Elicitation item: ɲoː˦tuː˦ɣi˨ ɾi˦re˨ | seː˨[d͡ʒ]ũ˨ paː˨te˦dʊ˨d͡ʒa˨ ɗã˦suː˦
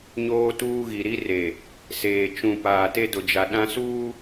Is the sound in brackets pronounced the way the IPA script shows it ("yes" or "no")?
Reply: no